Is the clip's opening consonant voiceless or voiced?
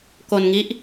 voiceless